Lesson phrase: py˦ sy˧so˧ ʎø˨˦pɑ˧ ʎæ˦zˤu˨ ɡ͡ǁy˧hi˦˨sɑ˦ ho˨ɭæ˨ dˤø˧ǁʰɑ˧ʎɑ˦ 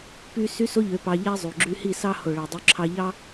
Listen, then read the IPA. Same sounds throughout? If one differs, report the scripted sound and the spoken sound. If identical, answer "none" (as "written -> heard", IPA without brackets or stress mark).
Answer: none